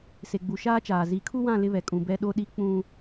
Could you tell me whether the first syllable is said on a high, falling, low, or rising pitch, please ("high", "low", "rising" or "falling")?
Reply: low